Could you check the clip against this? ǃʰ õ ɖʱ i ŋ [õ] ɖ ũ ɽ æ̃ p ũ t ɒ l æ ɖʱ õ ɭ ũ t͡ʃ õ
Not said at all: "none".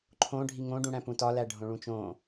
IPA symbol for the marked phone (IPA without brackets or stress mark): õ